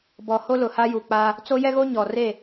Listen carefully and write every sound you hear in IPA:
b ɔ˨ h o˦ l ʊ˨ h a˦ j u˨ k͡p a˦ | t͡s o˦ j ɛ˦ ɣ o˦ ɲ ɔ˨ r e˦˨

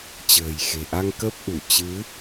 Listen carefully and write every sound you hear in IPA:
t͡ɕ ə̤ː˨˩ j x e̤˨˩ ʔ a˧ ŋ k ə˦˥ p̚ ʔ u˧˩ t͡ɕ ɨ˨˦

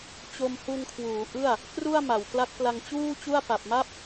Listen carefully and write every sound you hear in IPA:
t͡ɕ o˧ m h u˧ n kʰ w uː˩˦ ʔ ɯ˥˩ a̯ | k r u˥˩ a̯ m a˩˦ w k l a˦˥ k̚ p l a˧ ŋ t͡ɕ uː˥˩ t͡ɕ u˥˩ a̯ p a˨˩ p̚ m a˥˩ p̚

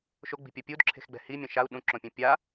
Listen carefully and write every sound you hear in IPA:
ʃ o ɡ͡b i̤ pʲ ɔ pʲ u d ǁʰ e̤ x ɡ͡b ɛ̤ h i mʲ ɔ̃ ʃ a u̯ ɗ ũ ǁ õ pʲ ũ pʲ a

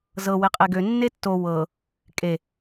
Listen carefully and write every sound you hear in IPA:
z ɤ w e qʼ e ɡ ø nː e tː o w ɤ | kʼ e

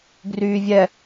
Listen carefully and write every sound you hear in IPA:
ɡ r yː vʲ ɛ

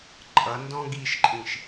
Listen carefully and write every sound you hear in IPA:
ǃʼ ʌ n d ɔ̃ ɡ i ʃ ǃʼ ĩ ʃ

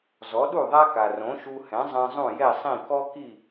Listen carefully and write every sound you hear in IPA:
z ɔ˩˥ ɗ u˥˩ ðˤ a˥ k a˩ r õ˩˥ ʃ u˧ h ɛ̃˩˥ zˤ ɛ̃˧ zˤ ũ˥˩ j ɛ˥˩ sˤ ĩ˥˩ k ɔ˥ k i˥˩

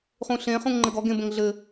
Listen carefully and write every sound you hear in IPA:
χ ũ ɬ ẽ χ ũ ŋ ŋ͡ǃ ɘ ɡ ɔ ɡ ẽ b ə̃ ŋ ɮ ɘ

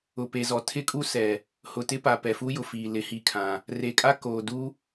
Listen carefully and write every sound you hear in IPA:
ʊ˨ p e˨ z ɔ˨ tʰ ɪ˦ kʼ u˦ s ɛ˨ | h ʊ˨ t ɪ˦ p a˨ p ɛ˨ f u˦ j ʊ˨ f iː˨ l ɪ˨˦ h i˨ kʰ ã˨ | r e˨ kʼ a˦ k oː˨ d u˦

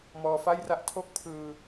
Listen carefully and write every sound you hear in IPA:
m ɔː˧ f a˥˩ j r a˥˩ ʔ tʰ o˥˩ k̚ pʰ ɯː˧

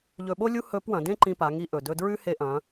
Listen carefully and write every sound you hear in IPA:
ʎ ɵ˧ ɓ o˥ lʲ u˥ h ɵ˧˥ p w ɐ̃˩˧ d ẽ˥ ǃ ĩ˧ p a˩˧ ŋ i˧ ʔ ɵ˩ d ɵ˧ d ɹ ʉ˥ h e˧ ʔ ɐ̃˩˧

